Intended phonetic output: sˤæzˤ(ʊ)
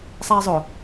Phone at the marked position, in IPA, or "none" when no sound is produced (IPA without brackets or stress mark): ʊ